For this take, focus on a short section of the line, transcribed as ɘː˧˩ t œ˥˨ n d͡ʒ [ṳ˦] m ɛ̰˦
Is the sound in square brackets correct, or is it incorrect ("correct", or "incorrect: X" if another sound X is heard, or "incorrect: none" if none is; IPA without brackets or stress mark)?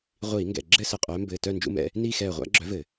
incorrect: ṵ˦